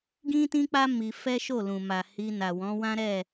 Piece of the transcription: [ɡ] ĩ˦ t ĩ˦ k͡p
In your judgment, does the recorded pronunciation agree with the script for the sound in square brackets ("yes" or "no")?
yes